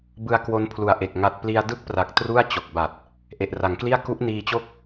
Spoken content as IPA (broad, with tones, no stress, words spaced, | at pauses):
bɯ˧a̯ kwo˦˥npʰlu˨˩a̯ʔe˨˩k̚ ŋa˦˥t̚ pli˧a̯ dɯ˥˩k̚pra˨˩k̚ tru˥˩a̯ t͡ɕo˨˩k̚ba˨˩t̚ | ʔe˨˩ʔra˩˦ŋkli˥˩a̯ ku˦˥ʔniː˧t͡ɕo˥˩k̚